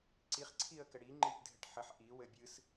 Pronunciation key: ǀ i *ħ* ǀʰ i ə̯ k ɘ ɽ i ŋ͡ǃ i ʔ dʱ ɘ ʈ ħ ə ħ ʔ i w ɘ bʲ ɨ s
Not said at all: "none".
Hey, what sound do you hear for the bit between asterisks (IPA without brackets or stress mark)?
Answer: χ